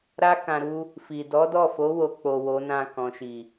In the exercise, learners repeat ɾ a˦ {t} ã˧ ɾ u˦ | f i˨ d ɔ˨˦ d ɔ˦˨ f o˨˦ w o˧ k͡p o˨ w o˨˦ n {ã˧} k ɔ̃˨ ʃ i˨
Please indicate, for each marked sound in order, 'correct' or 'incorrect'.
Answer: incorrect, incorrect

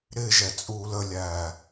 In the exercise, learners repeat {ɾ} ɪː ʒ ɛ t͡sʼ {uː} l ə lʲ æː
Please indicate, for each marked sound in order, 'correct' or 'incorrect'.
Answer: correct, correct

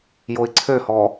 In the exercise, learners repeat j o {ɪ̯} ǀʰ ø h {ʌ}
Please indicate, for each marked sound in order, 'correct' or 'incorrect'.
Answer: correct, incorrect

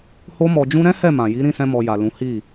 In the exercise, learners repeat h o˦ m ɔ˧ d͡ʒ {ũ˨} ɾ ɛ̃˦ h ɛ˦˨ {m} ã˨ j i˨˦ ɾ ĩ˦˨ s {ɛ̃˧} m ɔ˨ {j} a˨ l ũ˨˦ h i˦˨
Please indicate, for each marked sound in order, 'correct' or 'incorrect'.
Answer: incorrect, correct, correct, correct

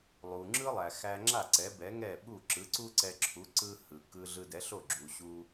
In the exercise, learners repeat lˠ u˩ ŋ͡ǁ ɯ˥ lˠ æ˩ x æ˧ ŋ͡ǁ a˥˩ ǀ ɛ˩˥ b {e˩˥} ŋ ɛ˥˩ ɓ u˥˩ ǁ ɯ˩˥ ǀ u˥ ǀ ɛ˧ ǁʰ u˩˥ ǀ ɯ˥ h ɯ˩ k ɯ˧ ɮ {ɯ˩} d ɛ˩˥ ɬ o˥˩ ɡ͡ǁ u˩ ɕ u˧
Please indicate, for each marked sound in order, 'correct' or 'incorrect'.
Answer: incorrect, incorrect

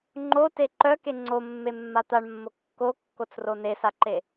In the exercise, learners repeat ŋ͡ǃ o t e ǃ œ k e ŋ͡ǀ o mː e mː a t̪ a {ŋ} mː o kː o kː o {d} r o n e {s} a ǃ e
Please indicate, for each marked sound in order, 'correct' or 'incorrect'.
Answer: incorrect, incorrect, correct

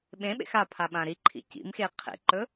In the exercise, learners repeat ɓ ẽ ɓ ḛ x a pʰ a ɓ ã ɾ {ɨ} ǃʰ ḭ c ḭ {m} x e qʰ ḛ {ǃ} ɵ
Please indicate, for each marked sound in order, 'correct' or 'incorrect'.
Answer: incorrect, correct, correct

